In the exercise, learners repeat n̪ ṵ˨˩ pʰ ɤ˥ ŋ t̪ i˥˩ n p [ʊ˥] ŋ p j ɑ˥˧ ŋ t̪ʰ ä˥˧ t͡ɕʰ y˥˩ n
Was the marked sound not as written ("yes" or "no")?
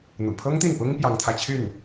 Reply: no